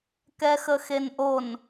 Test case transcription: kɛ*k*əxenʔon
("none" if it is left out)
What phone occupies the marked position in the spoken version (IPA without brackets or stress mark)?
x